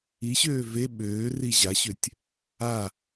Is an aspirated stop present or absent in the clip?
absent